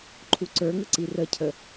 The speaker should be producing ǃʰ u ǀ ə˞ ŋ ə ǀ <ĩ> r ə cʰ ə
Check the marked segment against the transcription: incorrect: i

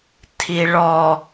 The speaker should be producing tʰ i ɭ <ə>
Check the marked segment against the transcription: incorrect: ɔ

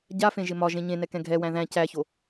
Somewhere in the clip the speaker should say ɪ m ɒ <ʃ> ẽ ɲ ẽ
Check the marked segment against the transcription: incorrect: ʒ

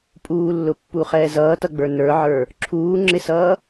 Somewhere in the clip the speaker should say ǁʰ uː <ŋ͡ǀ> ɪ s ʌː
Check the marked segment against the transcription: incorrect: ŋ͡ǁ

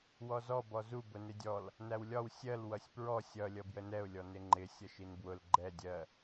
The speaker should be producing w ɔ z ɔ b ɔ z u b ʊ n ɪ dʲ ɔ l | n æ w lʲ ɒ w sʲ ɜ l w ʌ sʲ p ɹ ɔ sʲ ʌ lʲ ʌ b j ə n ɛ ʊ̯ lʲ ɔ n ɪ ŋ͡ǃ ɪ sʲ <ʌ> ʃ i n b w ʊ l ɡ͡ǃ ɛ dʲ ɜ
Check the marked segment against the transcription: correct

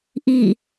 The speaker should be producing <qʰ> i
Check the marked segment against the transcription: incorrect: ʔ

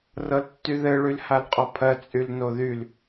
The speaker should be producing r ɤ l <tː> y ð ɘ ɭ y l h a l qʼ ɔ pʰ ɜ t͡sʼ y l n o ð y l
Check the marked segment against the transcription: correct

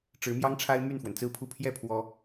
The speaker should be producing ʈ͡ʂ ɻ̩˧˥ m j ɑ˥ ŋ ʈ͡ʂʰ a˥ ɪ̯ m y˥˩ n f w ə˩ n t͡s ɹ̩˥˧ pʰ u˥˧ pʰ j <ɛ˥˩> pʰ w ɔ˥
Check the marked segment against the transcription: correct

